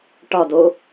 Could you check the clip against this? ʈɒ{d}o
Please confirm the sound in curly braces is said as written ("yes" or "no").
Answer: yes